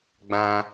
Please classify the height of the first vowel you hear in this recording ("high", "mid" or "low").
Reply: low